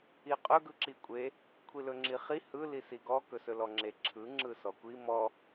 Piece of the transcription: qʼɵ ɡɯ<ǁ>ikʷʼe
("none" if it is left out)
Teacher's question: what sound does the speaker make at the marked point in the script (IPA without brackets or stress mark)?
ǁ